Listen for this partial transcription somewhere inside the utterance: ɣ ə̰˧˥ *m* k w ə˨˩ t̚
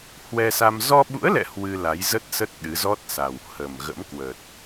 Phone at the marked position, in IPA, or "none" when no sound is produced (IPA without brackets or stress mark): m